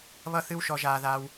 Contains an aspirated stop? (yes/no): no